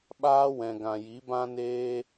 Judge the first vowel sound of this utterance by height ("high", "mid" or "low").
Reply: low